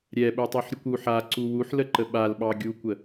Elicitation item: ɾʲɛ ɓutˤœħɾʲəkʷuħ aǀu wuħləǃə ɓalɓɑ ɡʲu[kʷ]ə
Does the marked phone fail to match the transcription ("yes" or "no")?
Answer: no